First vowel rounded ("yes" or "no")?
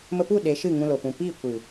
no